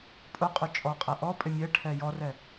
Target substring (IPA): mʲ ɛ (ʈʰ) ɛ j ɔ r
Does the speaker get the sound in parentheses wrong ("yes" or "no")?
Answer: no